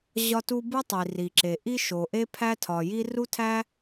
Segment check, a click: present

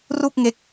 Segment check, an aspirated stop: absent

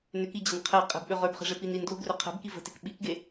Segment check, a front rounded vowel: present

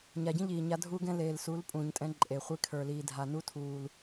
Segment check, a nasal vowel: present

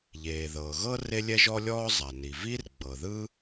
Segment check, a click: absent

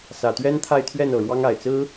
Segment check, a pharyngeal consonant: absent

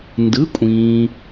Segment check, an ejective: present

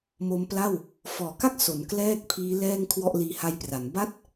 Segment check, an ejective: absent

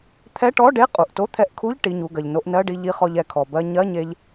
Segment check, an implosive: absent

